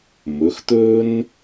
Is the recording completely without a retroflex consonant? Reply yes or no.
yes